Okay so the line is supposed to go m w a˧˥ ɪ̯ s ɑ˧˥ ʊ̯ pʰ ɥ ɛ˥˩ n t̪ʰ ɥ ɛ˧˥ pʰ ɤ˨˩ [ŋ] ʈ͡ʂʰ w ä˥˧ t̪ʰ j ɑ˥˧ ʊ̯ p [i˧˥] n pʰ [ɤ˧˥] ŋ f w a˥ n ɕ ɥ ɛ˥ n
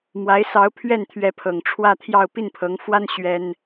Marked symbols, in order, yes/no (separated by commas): yes, no, yes